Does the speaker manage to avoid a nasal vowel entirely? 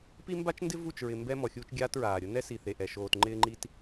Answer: yes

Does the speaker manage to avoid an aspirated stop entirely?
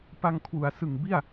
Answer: no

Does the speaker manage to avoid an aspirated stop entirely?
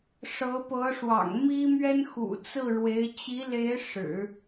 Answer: yes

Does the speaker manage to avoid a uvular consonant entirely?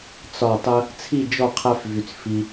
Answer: no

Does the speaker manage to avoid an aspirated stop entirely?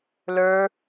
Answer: yes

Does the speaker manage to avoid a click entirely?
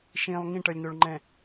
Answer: no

